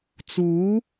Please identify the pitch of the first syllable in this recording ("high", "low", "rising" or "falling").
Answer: rising